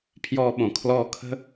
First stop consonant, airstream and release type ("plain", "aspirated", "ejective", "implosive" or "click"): aspirated